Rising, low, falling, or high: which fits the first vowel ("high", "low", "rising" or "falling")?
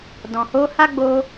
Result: low